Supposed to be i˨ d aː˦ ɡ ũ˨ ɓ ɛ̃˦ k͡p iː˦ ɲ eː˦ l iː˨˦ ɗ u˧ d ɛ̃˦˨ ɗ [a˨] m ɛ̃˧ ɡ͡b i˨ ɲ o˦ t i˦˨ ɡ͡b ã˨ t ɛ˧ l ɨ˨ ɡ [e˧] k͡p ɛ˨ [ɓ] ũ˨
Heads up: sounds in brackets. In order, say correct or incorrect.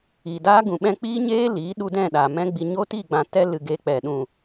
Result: correct, correct, incorrect: ɗ

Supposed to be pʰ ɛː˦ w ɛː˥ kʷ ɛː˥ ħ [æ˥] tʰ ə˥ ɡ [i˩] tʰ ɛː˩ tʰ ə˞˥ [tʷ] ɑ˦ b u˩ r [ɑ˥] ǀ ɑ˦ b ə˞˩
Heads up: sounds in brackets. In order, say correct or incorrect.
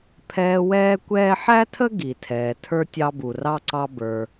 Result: correct, correct, incorrect: tʲ, correct

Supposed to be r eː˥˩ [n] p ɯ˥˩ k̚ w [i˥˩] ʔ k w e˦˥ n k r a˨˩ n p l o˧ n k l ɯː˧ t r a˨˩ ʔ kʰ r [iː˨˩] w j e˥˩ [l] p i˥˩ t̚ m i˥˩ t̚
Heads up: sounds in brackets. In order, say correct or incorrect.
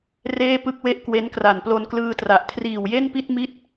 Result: incorrect: none, incorrect: e˥˩, correct, incorrect: n

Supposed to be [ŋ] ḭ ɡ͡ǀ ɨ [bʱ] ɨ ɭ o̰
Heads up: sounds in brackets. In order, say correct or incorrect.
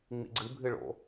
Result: incorrect: ŋ͡m, correct

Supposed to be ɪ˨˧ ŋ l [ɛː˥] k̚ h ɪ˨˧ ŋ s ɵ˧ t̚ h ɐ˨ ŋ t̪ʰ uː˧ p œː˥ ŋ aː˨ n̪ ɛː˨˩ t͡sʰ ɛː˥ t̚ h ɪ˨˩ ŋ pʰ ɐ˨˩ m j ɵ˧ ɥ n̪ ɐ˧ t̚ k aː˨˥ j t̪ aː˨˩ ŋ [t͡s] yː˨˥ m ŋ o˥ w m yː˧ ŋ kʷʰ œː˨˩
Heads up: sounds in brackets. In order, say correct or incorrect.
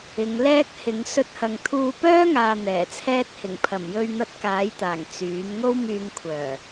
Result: correct, correct

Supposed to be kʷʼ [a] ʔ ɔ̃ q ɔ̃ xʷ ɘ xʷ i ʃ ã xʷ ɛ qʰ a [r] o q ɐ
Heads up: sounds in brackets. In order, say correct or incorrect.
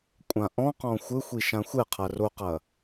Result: incorrect: ã, correct

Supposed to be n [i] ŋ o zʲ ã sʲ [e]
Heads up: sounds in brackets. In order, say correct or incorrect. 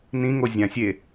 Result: incorrect: ĩ, correct

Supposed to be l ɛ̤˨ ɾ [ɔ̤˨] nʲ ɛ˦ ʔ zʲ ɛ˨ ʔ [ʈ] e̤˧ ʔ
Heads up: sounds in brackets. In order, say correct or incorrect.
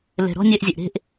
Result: incorrect: ɔ̤˦, incorrect: ɾ

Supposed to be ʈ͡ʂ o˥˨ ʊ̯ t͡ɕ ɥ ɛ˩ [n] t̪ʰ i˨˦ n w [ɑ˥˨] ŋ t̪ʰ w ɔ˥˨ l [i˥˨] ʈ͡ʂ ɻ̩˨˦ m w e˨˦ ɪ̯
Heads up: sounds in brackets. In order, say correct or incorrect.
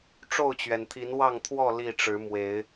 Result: correct, correct, correct

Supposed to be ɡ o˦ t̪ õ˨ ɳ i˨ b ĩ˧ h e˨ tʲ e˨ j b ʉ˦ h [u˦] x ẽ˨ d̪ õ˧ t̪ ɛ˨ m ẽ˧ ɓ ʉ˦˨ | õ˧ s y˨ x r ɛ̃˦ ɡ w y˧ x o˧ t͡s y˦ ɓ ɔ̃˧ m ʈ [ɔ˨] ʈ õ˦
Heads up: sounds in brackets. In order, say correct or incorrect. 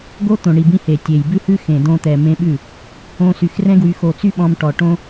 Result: incorrect: ʉ˦, correct

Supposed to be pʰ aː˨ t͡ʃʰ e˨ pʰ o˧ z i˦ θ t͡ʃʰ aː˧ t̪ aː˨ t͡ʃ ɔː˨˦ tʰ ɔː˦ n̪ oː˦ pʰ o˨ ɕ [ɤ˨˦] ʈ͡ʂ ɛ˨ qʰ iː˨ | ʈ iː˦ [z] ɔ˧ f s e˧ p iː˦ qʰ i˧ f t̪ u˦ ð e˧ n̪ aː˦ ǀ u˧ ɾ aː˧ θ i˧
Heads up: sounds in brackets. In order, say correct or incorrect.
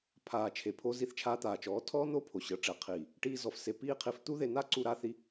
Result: correct, correct

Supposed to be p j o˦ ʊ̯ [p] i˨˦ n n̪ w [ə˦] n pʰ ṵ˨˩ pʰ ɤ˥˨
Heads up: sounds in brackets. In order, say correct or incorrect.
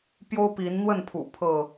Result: correct, incorrect: ə˥˨

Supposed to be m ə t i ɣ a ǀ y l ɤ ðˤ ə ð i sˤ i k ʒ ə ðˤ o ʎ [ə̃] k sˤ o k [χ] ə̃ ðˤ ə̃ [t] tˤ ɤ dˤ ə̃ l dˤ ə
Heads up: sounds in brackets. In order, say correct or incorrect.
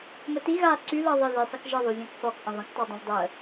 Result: incorrect: ã, incorrect: ʔ, incorrect: k

